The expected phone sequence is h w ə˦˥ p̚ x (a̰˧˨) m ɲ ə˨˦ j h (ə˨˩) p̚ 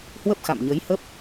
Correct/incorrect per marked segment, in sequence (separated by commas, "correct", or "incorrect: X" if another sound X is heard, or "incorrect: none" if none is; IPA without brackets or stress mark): correct, incorrect: ə˦˥